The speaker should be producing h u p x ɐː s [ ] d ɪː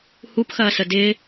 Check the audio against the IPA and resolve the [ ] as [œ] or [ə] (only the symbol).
ə